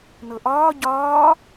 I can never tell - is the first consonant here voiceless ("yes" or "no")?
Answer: no